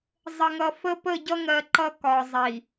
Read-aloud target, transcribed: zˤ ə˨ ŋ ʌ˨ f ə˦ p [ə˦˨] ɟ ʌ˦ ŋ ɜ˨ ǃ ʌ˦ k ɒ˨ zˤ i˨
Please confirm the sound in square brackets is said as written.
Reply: yes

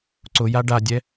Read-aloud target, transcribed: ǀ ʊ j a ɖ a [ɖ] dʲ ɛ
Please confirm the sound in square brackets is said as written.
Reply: no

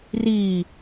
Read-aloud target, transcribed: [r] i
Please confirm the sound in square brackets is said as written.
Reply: yes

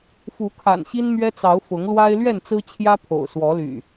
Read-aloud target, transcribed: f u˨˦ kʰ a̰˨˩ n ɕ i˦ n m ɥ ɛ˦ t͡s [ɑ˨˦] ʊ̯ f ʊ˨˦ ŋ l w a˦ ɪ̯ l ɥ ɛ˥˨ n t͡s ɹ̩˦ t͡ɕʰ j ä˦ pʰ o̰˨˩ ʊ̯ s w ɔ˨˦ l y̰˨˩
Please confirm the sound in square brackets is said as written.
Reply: yes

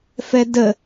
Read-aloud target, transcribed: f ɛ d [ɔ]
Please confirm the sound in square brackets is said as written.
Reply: no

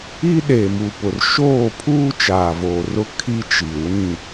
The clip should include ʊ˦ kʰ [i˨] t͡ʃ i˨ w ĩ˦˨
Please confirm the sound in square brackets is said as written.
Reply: no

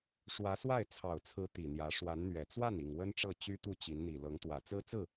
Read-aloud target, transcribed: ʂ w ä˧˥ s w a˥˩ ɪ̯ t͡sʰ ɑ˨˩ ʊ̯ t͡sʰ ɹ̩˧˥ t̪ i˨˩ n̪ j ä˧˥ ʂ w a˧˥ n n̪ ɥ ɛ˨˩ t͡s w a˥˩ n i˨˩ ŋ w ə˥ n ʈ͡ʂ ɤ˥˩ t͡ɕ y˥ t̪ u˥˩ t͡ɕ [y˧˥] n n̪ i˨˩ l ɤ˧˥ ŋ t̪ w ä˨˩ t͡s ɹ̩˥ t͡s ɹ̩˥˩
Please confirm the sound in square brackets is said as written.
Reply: no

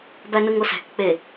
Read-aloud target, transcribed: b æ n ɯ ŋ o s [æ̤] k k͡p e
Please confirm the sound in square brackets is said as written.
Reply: yes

